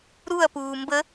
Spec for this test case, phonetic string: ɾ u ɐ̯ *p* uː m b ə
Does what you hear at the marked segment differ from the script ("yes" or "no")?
no